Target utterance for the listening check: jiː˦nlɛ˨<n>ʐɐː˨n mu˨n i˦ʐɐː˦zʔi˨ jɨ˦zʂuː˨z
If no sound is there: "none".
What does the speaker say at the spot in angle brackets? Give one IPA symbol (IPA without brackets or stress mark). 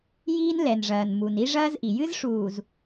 n